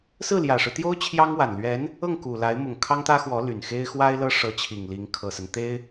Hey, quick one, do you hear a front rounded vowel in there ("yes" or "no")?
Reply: yes